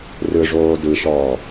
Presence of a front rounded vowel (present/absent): absent